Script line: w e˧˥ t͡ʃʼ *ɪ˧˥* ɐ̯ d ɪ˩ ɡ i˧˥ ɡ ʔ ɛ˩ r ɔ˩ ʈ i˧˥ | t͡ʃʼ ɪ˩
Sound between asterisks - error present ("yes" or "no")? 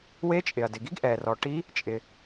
yes